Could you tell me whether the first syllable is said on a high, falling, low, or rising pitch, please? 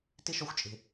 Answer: high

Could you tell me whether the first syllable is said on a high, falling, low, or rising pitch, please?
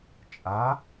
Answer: rising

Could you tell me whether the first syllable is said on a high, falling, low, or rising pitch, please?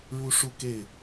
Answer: high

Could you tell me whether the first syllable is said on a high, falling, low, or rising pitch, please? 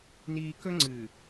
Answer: high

